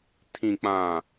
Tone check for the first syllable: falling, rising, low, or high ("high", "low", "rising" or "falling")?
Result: low